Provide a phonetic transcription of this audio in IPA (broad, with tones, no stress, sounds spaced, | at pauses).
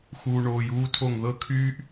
x uː˨ ɳ oː˨ j uː˦ tʰ o˦˨ ŋ ð ɤ˦ kʰ yː˦ ʔ